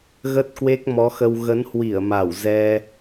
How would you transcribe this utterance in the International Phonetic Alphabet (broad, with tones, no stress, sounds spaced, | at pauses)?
ɣ ə˦˥ t̚ k w e˦˥ k̚ m ɔ˨˦ x ə˧ w ɣ ə˨˦ n h w i˧˩ ə̯ m a˧˩ w z ɛ˧